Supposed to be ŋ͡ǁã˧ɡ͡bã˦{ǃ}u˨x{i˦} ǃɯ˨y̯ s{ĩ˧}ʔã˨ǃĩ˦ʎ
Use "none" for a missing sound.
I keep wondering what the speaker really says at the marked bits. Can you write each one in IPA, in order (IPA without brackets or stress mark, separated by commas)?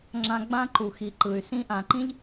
ǃ, i˨, ĩ˧